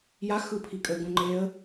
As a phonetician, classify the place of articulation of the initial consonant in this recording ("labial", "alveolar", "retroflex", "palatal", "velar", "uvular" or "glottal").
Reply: palatal